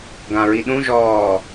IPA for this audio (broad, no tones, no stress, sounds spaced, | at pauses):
ɡ ã ɹ i ɗ ũ ʒ ɔː